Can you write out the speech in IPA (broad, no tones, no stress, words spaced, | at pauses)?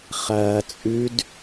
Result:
χɐː t͡sʼʉd